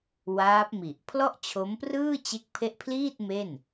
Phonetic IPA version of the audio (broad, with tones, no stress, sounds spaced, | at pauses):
w aː˦˥ p̚ m i˨˩ ʔ pʰ l ɔ˥˩ ʔ t͡ɕʰ o˦˥ m p r ɯː˥˩ t͡ɕ e˦˥ k̚ pʰ e˦˥ ʔ pʰ l iː˥˩ t̚ m e˥˩ n